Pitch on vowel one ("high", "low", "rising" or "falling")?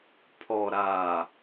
low